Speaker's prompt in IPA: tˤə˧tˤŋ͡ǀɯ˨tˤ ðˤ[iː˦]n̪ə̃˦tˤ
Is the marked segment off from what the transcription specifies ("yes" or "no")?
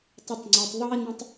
no